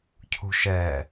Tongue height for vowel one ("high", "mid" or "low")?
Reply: high